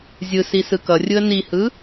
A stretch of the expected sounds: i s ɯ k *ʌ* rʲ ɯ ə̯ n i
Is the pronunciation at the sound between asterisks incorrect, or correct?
correct